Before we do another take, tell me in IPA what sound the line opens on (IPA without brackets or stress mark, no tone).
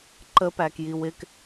ǃ